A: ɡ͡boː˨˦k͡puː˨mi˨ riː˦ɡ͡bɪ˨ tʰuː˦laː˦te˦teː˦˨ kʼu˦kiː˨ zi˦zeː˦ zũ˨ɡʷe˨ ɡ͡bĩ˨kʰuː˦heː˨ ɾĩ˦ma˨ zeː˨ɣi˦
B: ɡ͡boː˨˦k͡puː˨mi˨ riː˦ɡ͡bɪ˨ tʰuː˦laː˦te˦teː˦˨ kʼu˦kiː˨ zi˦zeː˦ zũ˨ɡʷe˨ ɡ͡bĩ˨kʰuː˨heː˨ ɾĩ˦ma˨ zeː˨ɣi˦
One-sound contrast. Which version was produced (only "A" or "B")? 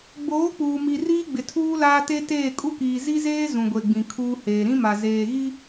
A